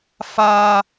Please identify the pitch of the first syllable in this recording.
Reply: high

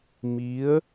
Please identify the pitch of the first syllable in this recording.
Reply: rising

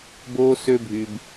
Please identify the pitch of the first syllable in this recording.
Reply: high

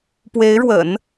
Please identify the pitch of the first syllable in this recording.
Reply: rising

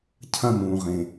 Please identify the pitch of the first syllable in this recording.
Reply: high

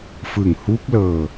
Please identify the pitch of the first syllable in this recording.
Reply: low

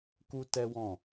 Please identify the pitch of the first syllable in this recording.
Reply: high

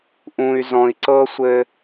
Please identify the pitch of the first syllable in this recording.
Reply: low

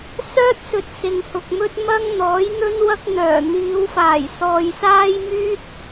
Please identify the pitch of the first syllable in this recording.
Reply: high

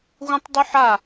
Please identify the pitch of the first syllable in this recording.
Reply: high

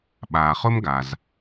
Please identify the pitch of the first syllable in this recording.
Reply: low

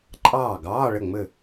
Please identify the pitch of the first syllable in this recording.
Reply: falling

